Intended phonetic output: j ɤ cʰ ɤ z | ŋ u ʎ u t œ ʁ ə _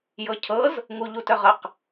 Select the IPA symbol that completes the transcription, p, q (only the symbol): q